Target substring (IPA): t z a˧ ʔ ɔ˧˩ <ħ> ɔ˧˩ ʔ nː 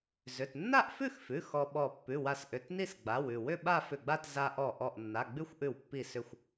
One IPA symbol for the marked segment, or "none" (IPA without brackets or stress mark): ʔ